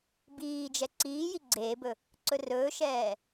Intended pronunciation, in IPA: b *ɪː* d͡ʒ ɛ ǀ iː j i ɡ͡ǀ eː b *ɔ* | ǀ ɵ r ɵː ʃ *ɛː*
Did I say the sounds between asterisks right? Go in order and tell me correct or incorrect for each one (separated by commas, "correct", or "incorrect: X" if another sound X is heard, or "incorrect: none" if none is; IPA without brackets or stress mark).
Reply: incorrect: iː, incorrect: ɵ, correct